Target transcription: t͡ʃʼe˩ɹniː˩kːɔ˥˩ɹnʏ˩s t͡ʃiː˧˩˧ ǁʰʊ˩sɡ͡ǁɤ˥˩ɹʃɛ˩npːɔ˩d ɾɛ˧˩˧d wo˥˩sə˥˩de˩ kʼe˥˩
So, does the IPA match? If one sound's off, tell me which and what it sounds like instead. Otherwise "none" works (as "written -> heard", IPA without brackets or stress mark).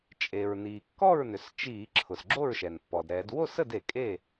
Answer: ɤ˥˩ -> o˥˩